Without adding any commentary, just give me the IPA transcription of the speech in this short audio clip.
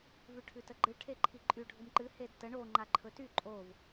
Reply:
v ʉ ʈʰ ʉ t ə ɡ͡ǃ ɨ ʈʰ e ǃʰ i ǃʼ y ɖʱ u m ǃ ɨ h e d t ə ɳ o ŋ͡ǃ a ǃʰ ɵ t y ǃʼ o v

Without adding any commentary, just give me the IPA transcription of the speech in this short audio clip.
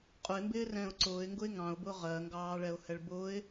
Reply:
qʼ ʊ ɪ̯ m b ɪː r ɛ̃ː ʊ̯ ǀ ʊː ɪ̯ ŋ ɡ ʊ ɪ̯ ŋ ɑ̃ ʊ̯ b ʊː ʁ ɜ ŋ ɡ ɑː ɭ ɛ ʊ̯ h ɛ ɭ b ʊː ɪ̯

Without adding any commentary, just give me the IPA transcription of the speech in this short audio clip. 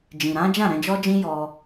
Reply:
d͡ʒ ĩ˨ ɾ ã˨˦ d͡ʒ ã˦˨ ɾ ɛ̃˧ d͡ʒ ɔ˦ d͡ʒ ĩ˦ j ɔ˧

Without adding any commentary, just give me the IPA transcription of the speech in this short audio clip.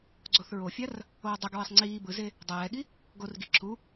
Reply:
ɡ͡ǀ o θ ɹ o fʲ a r | oː dˤ u ɡ ɹ i sˤ ŋ͡ǀ iː b ɯ z e | dˤ ɛː ɠ i | ɡ o r ɡ i ǁʰ u

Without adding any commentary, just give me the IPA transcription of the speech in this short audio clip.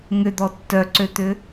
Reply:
ŋ ʏ d̪ ɔ tː œ ǀ ø t̪ ʏ

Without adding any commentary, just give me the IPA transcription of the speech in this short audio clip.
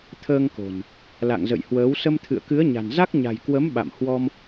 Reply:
t̪ʰ əː˧ ŋ k o̤˨˩ n | l a̰˧˨ ŋ z ə̰˧˨ j h w əː˨˦ w s ə˧ m t̪ʰ ɨ̰˧˨ ə̯ k ɨ˨˦ ə̯ ɲ a̤˨˩ n z a˦˥ k̚ ɲ a̤˨˩ j k w ə˨˦ m ɓ a̰˧˨ m h w ɔ˧ m

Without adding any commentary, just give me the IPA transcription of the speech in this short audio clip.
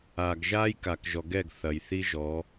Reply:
a˨ ɡ ʒ a˦ j k a˨ k ʒ ɔ˨ ɡ ɛ˦˨ ɡ θ ɐ˨ j θ i˦ ʒ ɔ˨˦

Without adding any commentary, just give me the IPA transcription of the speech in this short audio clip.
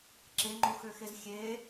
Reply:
ǁ e ŋ͡ǃ o x ø x e z xʲ e

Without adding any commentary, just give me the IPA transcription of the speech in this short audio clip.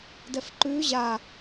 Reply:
d ɛ f ǃ ʉː ʑ a

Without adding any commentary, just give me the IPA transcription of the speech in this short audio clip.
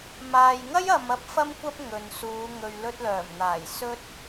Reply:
m aː˨ j ŋ ɐ˥ j ɐ˨ m ɐ˧ p̚ f ɐ˧ m kʷ ɐ˧ p̚ ŋ ɵ˨ n s uː˨˧ ŋ ɵ˨ ɥ l ɵ˧ t̚ l œː˨˩ m n̪ aː˨˩ j s ɵ˥ t̚

